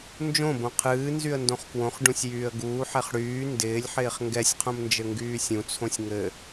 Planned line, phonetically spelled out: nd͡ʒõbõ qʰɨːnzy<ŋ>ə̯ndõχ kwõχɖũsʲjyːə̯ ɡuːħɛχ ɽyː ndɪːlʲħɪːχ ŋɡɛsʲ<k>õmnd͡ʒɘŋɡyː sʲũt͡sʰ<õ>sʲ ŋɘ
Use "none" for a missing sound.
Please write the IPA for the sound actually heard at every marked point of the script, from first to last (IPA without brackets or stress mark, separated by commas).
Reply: none, qʰ, õ